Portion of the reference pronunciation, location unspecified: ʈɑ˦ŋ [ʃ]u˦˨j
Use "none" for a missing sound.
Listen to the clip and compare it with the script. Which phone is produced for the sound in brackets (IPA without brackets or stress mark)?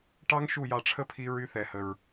ʃ